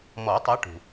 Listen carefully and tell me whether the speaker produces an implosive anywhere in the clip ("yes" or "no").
no